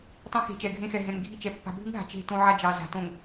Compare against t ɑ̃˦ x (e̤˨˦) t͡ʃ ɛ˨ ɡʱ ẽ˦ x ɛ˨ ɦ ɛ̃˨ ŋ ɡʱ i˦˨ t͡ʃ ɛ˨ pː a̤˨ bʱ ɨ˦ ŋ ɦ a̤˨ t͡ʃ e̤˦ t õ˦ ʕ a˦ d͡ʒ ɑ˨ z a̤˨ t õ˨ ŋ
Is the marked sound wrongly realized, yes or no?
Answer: no